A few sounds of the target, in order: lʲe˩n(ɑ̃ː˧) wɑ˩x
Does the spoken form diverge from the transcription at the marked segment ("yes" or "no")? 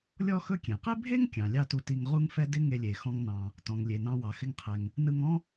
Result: yes